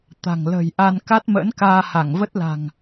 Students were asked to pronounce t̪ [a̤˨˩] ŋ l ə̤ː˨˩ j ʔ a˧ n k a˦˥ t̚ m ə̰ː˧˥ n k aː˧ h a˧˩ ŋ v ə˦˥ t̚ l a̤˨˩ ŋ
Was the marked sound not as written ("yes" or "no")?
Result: no